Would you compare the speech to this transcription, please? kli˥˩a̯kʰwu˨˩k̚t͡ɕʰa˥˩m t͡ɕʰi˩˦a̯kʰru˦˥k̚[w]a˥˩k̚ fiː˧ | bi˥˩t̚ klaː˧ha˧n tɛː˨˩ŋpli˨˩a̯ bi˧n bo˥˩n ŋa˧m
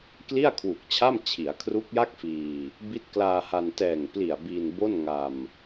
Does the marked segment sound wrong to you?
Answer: yes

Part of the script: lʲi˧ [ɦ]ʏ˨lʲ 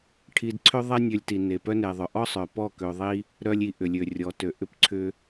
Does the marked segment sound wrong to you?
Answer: yes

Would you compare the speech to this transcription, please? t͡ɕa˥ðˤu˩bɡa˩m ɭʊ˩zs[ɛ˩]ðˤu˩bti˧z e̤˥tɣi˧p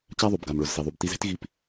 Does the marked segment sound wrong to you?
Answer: yes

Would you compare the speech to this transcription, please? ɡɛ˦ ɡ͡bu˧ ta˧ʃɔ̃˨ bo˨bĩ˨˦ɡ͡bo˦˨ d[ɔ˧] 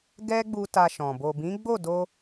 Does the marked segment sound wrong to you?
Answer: yes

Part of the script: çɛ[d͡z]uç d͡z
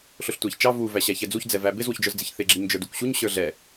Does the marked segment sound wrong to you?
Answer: no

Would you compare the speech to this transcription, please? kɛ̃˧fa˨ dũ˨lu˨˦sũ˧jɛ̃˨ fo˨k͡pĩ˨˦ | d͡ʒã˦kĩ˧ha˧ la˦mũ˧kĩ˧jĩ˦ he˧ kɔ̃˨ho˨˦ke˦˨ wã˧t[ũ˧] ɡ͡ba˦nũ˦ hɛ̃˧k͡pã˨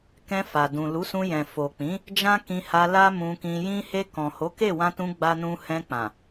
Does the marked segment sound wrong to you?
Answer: no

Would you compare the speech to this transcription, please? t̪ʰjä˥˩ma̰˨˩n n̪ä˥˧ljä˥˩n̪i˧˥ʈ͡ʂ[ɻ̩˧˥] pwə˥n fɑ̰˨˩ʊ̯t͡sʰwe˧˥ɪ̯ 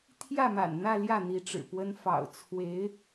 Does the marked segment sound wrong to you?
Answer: yes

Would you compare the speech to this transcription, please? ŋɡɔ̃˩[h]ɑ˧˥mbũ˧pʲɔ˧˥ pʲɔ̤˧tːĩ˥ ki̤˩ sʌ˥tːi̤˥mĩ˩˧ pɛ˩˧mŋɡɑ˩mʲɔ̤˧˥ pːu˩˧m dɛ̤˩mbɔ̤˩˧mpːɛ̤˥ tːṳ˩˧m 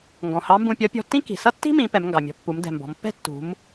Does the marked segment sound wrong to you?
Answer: no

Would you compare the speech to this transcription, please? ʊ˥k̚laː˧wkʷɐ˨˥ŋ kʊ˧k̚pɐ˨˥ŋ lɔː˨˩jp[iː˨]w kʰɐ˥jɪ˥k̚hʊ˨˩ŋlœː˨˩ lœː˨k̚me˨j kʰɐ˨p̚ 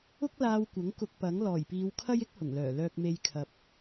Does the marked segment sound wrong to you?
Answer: yes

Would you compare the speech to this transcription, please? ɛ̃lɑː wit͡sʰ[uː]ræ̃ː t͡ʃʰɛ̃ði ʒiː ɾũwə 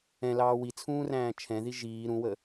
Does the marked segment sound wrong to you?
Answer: yes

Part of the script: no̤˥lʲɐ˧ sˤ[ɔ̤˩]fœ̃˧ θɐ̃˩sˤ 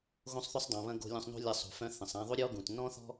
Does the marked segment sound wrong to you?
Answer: yes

